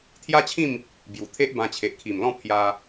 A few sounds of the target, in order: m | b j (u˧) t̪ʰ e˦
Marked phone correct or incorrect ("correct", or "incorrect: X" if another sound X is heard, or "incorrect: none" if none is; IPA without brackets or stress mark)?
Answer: incorrect: u˨˩